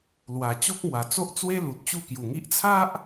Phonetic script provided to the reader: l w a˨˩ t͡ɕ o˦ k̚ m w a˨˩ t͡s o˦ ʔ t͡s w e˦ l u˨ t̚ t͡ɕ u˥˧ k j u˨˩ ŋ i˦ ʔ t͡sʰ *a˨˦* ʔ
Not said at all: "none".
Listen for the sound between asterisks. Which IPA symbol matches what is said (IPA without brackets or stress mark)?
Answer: a˦